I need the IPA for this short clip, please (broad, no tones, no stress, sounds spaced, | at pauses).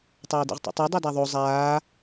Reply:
tˤ aː d ḭ ʁ tˤ ḛ tˤ e dˤ e d a ðˤ o zˤ aː